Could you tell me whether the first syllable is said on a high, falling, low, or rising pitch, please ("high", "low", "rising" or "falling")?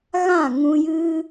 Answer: falling